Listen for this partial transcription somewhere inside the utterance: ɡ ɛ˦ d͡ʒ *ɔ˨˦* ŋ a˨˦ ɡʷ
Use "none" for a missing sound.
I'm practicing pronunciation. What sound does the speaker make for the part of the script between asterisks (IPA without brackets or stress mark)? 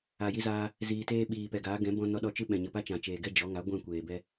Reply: ɔ˨˦